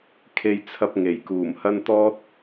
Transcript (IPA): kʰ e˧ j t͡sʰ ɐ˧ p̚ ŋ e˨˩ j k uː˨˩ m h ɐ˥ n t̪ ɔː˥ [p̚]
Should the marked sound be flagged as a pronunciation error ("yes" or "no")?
yes